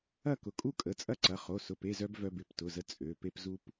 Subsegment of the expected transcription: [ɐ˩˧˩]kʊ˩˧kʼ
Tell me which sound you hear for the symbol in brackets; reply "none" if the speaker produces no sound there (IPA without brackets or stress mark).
ɐ˥˨